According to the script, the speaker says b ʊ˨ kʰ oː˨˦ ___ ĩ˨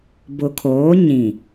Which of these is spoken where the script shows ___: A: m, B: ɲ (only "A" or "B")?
B